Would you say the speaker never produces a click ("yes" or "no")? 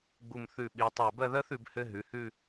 yes